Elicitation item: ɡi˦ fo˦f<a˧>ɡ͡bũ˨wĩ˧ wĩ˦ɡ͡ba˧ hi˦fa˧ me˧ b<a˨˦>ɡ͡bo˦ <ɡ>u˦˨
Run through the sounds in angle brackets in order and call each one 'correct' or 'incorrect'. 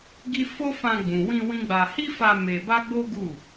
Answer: incorrect: ã˧, incorrect: a˦, correct

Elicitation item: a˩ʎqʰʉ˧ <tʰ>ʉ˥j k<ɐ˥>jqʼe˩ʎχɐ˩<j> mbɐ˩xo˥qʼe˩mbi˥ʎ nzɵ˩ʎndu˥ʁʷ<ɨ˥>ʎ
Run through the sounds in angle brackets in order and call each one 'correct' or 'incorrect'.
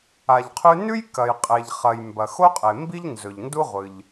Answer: incorrect: n, incorrect: ɐ˩, correct, incorrect: ɨ˩

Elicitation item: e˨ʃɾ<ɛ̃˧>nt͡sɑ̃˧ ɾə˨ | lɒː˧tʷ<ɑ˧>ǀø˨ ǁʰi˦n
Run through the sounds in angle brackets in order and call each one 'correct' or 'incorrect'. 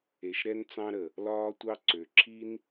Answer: incorrect: ɛ˧, correct

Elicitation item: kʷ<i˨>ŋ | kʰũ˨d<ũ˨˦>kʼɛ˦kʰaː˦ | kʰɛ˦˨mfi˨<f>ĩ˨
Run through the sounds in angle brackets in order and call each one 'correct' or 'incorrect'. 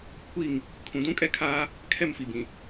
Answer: incorrect: i˦˨, incorrect: ũ˦, incorrect: b

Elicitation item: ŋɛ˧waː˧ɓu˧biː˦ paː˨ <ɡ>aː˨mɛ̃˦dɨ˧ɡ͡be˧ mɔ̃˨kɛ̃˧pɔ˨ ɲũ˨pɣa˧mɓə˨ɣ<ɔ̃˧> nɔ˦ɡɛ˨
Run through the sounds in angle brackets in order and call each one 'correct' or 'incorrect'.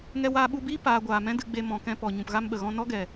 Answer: incorrect: ɡʷ, correct

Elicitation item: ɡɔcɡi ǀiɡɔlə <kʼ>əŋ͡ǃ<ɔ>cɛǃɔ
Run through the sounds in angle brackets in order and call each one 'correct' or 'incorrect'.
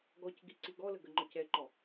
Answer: incorrect: ɡ, correct

